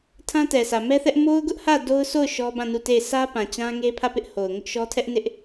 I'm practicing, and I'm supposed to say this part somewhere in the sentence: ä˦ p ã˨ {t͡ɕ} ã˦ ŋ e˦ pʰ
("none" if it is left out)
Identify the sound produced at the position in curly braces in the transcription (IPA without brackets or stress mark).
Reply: t͡ɕ